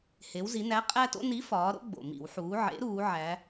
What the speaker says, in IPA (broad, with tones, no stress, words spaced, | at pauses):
he˩˧wzi˩˧næ˨˥ qʼæ˦to̰˦ ni˨˥fɒː˩˧ɾo̰˦ ɡ͡bo̰˩mḭ˧˩˧wħuː˩˧ ʕḛ˨˥ɾuː˩˧ ʕæ˩˧